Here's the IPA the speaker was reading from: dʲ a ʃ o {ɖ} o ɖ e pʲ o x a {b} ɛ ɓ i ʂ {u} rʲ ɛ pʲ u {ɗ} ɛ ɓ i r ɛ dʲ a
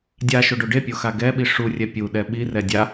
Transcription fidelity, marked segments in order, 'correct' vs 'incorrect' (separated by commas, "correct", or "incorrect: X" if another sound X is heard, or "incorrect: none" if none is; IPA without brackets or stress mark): correct, incorrect: ɡ, correct, correct